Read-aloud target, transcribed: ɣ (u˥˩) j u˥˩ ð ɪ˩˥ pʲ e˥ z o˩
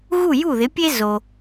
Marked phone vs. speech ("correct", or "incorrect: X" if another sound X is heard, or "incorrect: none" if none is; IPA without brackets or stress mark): correct